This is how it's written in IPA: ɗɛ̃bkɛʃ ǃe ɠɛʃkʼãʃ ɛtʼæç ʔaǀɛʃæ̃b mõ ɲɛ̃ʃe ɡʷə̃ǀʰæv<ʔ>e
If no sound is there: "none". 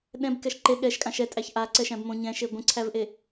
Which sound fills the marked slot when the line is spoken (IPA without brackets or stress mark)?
ʔ